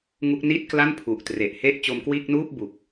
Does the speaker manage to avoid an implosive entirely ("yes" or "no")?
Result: yes